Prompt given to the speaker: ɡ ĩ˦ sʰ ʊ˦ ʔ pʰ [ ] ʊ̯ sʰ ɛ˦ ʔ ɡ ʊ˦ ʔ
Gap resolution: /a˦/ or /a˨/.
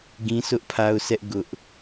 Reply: a˦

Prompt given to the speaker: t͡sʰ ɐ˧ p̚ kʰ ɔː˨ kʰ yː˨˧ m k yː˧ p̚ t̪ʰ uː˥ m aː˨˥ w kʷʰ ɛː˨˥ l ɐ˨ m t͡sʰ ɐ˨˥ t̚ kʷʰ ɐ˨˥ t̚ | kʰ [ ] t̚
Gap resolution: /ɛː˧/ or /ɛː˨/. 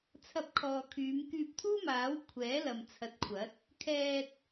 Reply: ɛː˧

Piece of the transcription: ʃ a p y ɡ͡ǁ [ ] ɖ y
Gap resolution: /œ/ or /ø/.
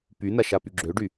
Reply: ø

